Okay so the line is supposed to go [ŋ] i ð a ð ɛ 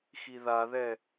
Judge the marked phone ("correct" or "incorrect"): incorrect